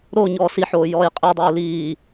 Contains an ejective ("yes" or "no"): yes